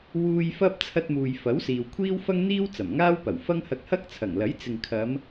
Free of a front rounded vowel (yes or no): yes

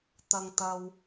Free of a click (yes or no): yes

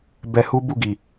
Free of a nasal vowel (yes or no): yes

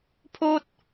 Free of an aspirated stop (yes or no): no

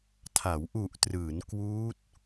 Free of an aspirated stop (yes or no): no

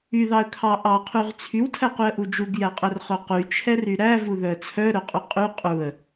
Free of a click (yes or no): yes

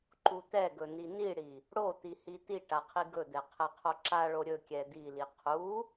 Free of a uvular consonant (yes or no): no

